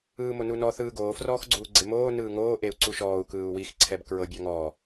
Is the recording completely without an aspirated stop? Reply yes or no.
no